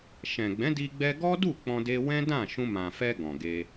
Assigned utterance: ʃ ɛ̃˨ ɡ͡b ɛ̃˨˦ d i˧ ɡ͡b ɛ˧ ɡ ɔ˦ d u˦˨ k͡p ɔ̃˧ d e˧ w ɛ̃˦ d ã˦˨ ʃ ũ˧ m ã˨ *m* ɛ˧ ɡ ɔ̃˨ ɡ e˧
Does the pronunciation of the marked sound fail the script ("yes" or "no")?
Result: yes